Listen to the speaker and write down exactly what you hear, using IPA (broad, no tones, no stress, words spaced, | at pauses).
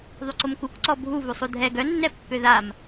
ðˤyǀomkuk ǀɔbʱu vusˤudʱɛ ɡœnːɛpːø ðam